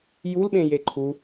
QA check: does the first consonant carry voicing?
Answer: yes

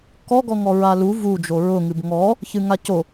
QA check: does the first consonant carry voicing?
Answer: no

